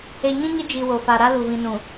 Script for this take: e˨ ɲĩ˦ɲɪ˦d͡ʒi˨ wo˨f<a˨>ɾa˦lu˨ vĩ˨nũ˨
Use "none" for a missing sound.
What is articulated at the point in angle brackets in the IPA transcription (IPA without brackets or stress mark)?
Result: a˨